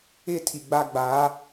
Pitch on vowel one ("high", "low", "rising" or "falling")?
high